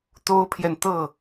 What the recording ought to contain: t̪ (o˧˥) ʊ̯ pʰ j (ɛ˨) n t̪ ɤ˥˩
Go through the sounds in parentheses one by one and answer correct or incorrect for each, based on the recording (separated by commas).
incorrect, correct